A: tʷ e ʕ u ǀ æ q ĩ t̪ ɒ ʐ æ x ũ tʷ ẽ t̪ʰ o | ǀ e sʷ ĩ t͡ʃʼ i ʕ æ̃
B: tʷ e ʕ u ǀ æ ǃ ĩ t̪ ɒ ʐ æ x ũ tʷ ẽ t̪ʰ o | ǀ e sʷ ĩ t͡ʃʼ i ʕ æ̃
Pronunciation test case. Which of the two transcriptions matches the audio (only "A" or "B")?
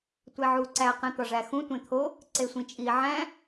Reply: A